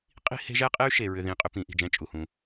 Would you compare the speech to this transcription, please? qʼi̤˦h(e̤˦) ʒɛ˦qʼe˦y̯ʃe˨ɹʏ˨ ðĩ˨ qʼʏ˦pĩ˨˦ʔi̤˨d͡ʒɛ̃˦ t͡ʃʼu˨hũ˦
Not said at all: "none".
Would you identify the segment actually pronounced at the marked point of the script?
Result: e̤˦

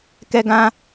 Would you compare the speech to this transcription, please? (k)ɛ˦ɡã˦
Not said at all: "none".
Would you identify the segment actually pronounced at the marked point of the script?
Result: k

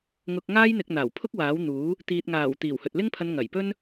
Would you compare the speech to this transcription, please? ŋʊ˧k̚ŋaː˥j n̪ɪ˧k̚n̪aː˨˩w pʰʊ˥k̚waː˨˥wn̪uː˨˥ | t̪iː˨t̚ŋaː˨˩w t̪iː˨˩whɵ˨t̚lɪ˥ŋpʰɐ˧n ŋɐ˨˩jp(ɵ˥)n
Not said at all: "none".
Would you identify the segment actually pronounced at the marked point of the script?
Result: ɵ˥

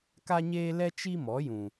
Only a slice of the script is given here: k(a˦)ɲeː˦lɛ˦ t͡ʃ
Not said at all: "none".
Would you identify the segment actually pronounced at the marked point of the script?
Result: a˦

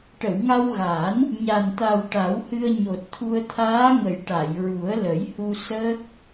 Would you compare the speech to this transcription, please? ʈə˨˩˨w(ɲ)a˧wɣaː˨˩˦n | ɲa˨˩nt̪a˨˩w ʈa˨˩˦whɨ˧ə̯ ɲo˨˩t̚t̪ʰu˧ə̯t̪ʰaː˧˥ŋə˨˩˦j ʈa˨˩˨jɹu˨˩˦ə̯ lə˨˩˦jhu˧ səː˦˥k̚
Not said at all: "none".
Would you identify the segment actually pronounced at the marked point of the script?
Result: ŋ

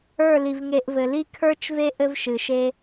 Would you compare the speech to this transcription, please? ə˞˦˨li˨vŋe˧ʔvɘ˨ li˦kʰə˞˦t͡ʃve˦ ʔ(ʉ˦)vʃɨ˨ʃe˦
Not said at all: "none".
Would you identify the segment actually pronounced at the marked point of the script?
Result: ɘ˦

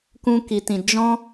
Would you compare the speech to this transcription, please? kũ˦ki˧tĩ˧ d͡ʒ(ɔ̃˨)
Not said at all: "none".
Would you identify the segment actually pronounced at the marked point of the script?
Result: ɔ̃˦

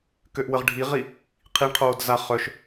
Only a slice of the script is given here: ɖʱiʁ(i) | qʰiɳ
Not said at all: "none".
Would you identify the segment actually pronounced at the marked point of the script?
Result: i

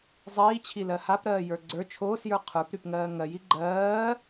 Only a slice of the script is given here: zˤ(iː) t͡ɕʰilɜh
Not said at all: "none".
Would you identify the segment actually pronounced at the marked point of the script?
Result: iː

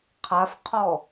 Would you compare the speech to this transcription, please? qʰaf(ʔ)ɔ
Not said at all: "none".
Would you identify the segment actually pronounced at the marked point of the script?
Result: qʰ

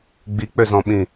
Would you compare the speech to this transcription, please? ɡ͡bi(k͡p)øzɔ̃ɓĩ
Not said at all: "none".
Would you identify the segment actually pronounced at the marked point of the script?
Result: k͡p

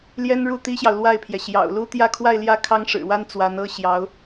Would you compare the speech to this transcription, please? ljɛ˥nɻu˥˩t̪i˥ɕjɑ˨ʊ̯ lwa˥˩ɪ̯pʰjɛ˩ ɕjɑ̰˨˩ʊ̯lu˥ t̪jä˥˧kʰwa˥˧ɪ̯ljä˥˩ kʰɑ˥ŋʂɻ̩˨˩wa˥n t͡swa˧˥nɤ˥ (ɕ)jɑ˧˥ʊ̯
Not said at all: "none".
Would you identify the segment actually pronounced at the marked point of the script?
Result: ɕ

